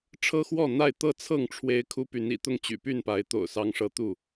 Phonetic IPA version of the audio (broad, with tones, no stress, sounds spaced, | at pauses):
ʈ͡ʂʰ ɤ˦ x w ɔ˥˨ n̪ a˥˨ ɪ̯ t̪ ɤ˥˨ t͡sʰ ɤ˥˨ ŋ ʈ͡ʂʰ w e˦ ɪ̯ kʰ u˦ p y˨˦ n ḭ˨˩ t̪ ʊ˥˨ ŋ t͡ɕ y̰˨˩ p y˥˨ n p a˨˦ ɪ̯ t̪ o̰˨˩ ʊ̯ s ɑ˦ ŋ ʂ ɤ˦ t̪ u˥˨